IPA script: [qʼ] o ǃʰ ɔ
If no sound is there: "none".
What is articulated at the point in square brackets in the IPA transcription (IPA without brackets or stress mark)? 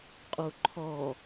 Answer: qʼ